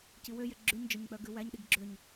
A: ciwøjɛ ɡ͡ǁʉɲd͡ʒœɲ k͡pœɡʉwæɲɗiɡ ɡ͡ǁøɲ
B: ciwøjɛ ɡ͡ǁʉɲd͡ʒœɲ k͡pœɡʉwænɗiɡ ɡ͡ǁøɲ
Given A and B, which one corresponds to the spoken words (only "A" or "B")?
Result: A